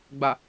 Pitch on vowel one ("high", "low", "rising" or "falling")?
low